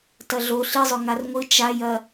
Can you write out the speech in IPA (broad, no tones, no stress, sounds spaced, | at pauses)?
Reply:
t ɐ ɮ o ɬ i zˤ ɵ ŋ a r ŋʷ ɨ t͡ʃ a j ɐ